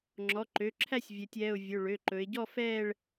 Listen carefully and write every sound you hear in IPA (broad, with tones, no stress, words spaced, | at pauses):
ŋ͡ǁɔ˩˧˩ǃø˩˧˩ǁʰæ˥˧sʲ vʲɛ˩˧tʲɛ˩˧˩ʊ̯ vʲɵ˩˧˩ɭø˩˧˩ǃɵ˩˧ɪ̯ ɟɔ˥˧fɛː˥˧ɭ